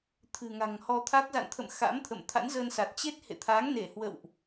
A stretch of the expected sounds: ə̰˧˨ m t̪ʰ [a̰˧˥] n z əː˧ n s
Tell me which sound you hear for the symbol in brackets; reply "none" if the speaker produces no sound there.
a̰˧˥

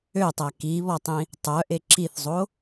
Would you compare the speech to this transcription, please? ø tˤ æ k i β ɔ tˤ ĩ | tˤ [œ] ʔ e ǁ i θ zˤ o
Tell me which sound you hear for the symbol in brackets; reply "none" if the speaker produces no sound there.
œ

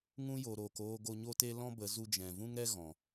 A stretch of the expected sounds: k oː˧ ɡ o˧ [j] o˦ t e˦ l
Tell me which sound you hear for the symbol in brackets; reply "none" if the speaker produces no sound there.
ɲ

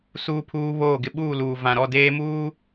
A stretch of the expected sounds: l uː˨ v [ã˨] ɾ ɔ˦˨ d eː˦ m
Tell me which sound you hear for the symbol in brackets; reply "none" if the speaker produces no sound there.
ã˨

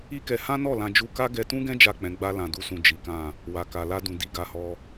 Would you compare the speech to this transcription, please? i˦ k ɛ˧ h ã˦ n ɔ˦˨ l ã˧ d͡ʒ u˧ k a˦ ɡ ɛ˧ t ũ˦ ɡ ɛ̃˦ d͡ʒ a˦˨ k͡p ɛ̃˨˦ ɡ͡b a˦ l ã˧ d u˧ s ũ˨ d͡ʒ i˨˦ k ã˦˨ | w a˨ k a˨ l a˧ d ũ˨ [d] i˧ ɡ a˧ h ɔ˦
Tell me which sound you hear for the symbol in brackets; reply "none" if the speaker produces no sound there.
d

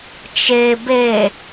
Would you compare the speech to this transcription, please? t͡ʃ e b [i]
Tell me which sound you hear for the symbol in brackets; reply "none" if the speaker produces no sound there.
e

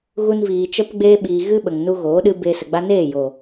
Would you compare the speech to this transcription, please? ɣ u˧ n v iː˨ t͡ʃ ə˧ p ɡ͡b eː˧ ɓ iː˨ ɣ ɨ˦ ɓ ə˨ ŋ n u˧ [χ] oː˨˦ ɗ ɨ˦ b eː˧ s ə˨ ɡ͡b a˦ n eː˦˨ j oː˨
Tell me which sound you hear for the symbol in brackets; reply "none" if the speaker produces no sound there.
ɣ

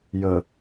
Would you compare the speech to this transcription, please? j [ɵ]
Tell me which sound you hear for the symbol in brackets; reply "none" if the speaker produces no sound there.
ə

